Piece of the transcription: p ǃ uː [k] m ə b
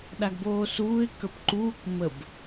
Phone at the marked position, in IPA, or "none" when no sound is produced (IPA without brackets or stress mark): k